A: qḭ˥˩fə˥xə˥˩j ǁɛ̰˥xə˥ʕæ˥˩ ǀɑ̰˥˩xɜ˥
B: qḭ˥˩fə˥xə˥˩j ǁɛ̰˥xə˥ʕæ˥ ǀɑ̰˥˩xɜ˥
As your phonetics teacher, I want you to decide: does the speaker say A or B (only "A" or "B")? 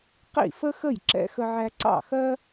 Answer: B